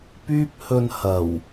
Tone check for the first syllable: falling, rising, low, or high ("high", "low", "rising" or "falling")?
high